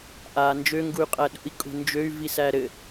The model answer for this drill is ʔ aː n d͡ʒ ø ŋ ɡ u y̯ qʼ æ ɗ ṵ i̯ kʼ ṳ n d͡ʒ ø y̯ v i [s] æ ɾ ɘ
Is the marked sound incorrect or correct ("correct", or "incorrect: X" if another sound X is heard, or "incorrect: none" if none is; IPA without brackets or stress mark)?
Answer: correct